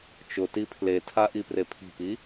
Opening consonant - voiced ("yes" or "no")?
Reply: no